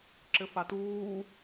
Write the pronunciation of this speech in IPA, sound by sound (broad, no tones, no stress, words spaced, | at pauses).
ǁɘfatuː